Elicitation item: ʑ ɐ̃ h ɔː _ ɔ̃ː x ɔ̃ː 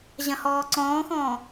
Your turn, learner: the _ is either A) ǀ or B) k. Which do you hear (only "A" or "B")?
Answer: A